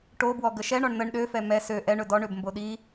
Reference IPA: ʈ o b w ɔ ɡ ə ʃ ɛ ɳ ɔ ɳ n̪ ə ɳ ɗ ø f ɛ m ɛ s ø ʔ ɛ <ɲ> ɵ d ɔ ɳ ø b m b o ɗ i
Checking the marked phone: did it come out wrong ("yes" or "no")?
yes